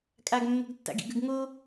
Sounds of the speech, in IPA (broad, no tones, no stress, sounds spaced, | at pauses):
kʼ a ɡ mː o̤ ɡ tː a̰ ɡ ḭ ɡ ʉ ɡ ŋ o